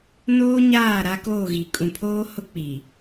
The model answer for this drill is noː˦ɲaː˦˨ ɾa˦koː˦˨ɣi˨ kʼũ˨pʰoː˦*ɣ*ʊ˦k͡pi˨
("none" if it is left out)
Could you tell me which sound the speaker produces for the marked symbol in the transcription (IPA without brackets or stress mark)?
h